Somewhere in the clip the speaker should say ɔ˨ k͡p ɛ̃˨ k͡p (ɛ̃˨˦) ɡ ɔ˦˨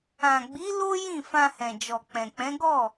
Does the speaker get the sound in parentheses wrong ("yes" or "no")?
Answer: no